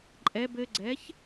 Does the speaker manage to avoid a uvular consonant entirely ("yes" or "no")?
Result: yes